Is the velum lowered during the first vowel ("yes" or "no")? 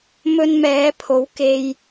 no